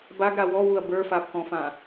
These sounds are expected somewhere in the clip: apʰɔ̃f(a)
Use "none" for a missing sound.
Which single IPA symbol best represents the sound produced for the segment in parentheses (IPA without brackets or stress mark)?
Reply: ã